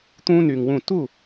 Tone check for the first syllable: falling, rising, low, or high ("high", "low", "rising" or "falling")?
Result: high